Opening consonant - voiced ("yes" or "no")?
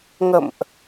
yes